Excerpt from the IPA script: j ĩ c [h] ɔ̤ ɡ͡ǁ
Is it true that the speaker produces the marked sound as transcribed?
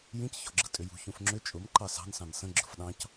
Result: no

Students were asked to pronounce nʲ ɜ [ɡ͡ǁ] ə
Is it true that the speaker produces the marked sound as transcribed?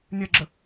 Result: yes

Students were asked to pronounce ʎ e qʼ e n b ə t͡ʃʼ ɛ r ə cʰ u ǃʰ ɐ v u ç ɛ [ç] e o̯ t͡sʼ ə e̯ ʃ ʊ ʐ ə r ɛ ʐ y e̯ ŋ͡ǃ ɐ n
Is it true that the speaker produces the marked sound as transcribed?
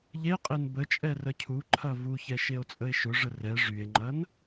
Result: no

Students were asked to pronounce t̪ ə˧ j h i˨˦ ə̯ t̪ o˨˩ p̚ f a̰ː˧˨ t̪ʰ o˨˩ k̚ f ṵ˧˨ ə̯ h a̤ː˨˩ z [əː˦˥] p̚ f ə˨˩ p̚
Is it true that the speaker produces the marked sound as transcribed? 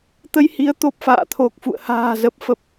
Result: no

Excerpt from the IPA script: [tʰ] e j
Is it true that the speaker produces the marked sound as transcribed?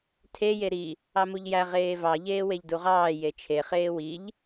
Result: yes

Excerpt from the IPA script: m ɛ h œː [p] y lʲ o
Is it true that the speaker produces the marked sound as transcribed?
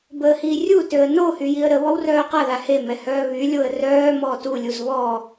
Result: no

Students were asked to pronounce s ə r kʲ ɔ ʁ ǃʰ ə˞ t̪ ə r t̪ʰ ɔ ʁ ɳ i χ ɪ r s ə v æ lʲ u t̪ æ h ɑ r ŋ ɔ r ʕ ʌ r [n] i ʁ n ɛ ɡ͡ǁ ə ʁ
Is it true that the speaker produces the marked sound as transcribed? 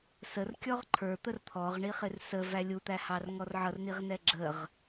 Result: yes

